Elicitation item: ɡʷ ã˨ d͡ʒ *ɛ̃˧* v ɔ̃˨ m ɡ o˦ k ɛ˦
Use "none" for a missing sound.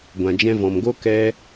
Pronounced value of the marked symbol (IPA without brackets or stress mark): ɛ̃˧